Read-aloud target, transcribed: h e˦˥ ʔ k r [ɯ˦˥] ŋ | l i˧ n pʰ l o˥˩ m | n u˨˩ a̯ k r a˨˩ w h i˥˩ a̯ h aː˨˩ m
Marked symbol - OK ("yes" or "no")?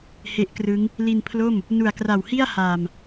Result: yes